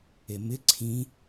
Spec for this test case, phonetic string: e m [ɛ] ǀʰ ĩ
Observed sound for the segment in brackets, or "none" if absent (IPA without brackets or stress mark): ɪ